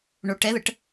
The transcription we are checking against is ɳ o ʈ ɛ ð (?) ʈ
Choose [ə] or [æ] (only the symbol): ə